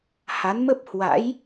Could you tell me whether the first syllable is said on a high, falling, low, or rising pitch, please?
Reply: rising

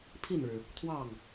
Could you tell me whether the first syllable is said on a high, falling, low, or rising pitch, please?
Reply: falling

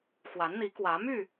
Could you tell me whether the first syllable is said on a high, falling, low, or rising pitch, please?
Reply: rising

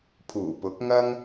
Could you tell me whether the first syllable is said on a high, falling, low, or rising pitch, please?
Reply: low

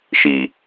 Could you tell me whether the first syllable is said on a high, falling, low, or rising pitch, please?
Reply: low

